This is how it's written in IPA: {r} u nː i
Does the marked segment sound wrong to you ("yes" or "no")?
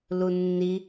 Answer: yes